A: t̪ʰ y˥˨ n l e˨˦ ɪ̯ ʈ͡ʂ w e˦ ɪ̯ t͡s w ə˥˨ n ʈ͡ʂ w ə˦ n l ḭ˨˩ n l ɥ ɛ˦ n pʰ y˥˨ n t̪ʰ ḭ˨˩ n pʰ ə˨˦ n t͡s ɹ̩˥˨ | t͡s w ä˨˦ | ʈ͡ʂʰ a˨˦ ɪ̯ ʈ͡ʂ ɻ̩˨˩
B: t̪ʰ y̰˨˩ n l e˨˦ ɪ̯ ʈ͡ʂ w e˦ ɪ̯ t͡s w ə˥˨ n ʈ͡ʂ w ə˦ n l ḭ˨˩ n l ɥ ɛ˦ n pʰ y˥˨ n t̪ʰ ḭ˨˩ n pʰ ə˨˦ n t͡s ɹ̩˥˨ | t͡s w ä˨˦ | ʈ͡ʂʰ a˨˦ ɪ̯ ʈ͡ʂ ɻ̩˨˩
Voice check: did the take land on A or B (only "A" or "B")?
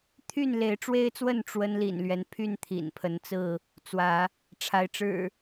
A